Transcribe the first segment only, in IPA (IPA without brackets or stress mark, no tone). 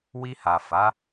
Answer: w